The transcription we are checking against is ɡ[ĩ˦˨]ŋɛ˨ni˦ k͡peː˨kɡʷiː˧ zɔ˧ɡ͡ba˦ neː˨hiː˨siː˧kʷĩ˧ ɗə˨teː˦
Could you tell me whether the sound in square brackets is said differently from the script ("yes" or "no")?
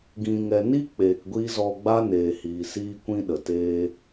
yes